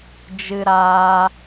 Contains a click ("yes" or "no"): no